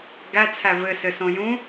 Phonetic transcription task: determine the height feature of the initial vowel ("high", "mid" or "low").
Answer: low